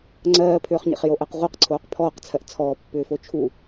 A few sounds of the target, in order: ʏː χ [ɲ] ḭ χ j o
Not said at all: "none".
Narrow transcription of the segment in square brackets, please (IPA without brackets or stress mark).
ɲ